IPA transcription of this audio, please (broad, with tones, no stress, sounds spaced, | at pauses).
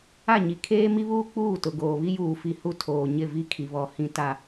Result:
a˦˨ ɲ i˨ kʰ eː˦ m i˦ β uː˦ k͡p uː˦˨ t ʊ˨ ɡ oː˨ β i˦ j uː˨ f i˨ h u˦˨ tʰ oː˨ ɲ ɪ˦˨ v i˦ kʰ i˨ β ɔ˨ h ĩ˦ t a˨